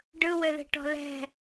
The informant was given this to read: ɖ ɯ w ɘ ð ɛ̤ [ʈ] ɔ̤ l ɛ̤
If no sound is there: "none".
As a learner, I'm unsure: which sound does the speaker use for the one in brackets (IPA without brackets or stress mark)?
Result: ʈ